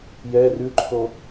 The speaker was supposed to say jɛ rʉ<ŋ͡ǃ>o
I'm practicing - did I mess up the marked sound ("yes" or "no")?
yes